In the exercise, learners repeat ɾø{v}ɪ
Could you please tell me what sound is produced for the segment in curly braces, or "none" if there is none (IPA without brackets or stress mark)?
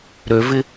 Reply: v